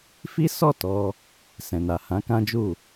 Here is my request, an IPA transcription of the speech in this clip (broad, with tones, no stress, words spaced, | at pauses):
fi˦sɔ˦˨tɔ˧ | sɛ̃˨na˨ hã˨˦kã˦d͡ʒu˦˨